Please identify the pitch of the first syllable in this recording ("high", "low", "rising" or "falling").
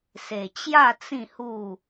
low